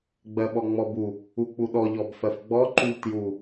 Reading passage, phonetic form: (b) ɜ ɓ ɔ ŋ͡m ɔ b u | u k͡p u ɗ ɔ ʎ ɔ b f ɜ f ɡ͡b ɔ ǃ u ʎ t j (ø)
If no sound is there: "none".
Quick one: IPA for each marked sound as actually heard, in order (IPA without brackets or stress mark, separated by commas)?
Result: ɡ͡b, u